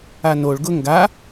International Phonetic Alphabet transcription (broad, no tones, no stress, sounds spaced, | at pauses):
a n o ɭ ɡ ʊ ŋ ɡ a